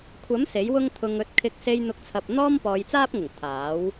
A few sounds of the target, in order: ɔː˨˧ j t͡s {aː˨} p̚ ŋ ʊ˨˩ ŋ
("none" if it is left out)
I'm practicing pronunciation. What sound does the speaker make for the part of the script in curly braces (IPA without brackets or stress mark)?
aː˥